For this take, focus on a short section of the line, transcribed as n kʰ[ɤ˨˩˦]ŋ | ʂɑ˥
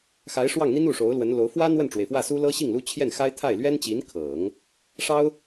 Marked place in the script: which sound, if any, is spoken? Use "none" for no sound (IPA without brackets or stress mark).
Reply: ɤ˨˩˦